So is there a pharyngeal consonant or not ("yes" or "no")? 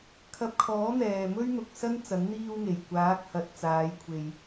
no